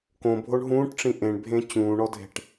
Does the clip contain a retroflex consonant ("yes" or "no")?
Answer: yes